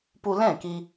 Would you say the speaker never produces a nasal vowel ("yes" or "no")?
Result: no